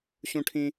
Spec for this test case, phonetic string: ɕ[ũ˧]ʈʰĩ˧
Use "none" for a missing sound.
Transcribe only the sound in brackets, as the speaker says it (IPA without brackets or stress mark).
ũ˧